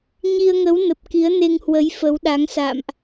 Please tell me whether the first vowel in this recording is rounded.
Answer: no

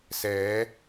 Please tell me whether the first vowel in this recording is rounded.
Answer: no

